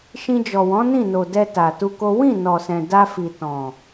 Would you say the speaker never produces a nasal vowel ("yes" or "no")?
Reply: no